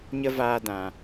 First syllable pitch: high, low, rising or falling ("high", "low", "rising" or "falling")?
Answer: high